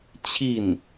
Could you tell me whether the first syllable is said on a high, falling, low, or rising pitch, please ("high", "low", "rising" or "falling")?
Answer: falling